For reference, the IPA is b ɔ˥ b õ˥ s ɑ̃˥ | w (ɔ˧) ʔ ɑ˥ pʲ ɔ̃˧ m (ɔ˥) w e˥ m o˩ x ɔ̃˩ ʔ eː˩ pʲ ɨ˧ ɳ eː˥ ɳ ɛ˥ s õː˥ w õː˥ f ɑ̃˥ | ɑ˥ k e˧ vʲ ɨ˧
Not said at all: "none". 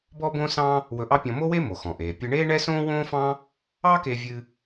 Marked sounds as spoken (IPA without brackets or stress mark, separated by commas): ɵ˧, o˥